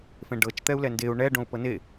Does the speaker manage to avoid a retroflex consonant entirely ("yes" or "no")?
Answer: no